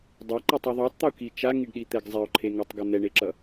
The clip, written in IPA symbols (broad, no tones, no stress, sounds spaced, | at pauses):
dˤ a ǃ ɛ tˤ ɯ ðˤ u tˤ t̪ u k i t͡ʃ a ŋ i ɖ ɗ i t̪ ɛ ɡ zˤ ɛ o̯ ǃʰ e ŋ a tˤ ɡ ʌ n̪ ɛ ɳ e ǁ ʌ